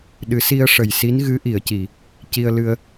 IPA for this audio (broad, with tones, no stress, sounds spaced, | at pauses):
ɗ ɨ˨˩˦ s i˧ ə̯ ʂ ə˨˩ j s i˧˥ n ɣ ɨ˧˥ ʔ i˨˩˨ ə̯ c i˨˩˨ | c i˧ ə̯ l ɨ˧ ə̯